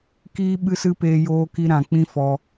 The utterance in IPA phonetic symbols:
k iː˦ ɓ ɨ˦ s ɨ˦ p eː˧ j oː˧ k i˧ ɾ ã˨ k͡p ĩ˦ f ɔ˧

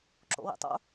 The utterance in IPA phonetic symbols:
ǁ o̰ w ḭ tˤ o̰

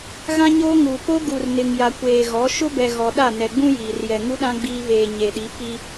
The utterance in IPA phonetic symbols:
ɣ ã˦ ɲ oː˦ ŋ uː˨ p o˦ ɡ u˨ r n ɪ˨ ŋ j a˨ kʷ eː˨ ɣ ɔ˨˦ ʃ ʊ˦ b ɛ˨ ɣ ɔ˨ ɗ a˦˨ n ɛ˨ ɡ͡b ũ˦ j iː˨ r j ɛ˨ ŋ u˦ ɗ ã˦ ɡ͡b iː˦ β eː˨ ɲ e˨ ɗ i˨˦ p i˦

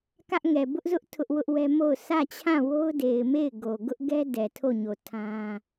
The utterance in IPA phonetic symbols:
k ä˦ ʔ ŋ ɛ˨ b ʊ˦ ʔ z ʊ˦ ʔ tʰ ʊ˦ ʔ w ʊ˦ ʔ w ɛ˦ m o˦˨ ʊ̯ s ä˦˨ t͡ɕʰ ã˦˨ w o˦ ʊ̯ d e˨ ɪ̯ m e˦˨ ɪ̯ ɡ o˨ ɡ ʊ˦ ʔ ɡ ɛ˦ d ɛ˨ tʰ o˦˨ ɲ o˨ tʰ ã˦

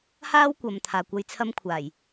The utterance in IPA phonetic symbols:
h aː˥ w kʷ ɐ˨ m t̪ʰ aː˨ kʷ ɐ˧ j t͡sʰ ɐ˥ m kʷʰ aː˨˩ j

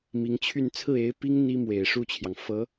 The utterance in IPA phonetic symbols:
m i˧˥ ŋ t͡ɕʰ y˥˧ n t͡sʰ ɹ̩˥˩ e˧˥ ɪ̯ p i˥ ŋ n̪ i˥ m w e˨˩ ɪ̯ ʂ u˥˩ t͡ɕʰ j ɑ˩ ŋ f ɤ˧˥

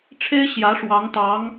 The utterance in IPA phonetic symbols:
ʈ͡ʂʰ e˥ ɪ̯ ɕ j ä˧˥ ʂ w ɑ˧˥ ŋ t̪ ɑ˧˥ ŋ

